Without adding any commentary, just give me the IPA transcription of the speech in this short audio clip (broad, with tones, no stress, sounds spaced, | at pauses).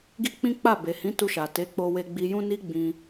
ɡ i˦ k͡p ĩ˦ k͡p a˦˨ b e˨ h ĩ˨˦ t u˧ ʃ a˨ t e˨˦ k͡p o˧ w e˧ ɡ͡b i˧ j ũ˦ n i˦ ɡ͡b ĩ˧